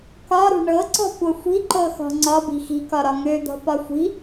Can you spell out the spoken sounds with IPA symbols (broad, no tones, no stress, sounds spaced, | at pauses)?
k ɒ ɾ ṳ ɳ ɤ ǀ ɔ̤ kʷ ɤ xʷ i̤ ǃ ɤ x ɔ̤ ŋ͡ǀ ɒ b i̤ x i̤ k ɒ ɾ ɒ ŋ ø d̪ ɔ̤ p ɒ xʷ i̤